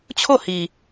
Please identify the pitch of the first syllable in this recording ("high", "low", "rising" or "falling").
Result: falling